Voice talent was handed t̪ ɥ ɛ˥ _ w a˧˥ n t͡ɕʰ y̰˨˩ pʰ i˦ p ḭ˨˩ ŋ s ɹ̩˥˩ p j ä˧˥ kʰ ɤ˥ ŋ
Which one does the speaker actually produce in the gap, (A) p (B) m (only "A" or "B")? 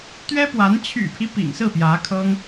A